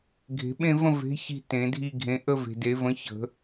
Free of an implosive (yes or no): no